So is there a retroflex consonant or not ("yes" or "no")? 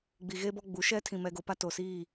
no